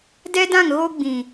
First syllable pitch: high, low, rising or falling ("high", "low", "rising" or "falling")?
high